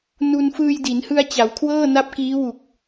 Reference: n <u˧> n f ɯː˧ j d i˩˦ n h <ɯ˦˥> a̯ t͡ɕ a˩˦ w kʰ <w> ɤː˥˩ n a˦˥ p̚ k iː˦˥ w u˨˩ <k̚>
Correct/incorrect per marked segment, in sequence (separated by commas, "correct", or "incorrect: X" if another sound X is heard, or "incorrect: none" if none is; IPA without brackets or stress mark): correct, incorrect: ɯ˧, correct, correct